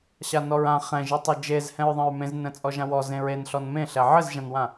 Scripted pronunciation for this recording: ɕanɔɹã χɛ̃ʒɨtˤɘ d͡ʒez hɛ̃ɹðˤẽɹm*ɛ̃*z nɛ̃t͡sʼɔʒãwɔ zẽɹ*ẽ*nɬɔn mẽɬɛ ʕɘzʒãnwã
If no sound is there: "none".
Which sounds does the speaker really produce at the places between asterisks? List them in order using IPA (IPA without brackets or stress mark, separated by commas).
ẽ, e